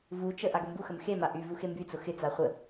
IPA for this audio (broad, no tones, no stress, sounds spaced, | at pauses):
v u t͡ʃ ə ʔ a ɡ o m b u x ə m x e m a ʔ y v u x e m b y t͡s ʊ x ɪ t͡s a χʷ ə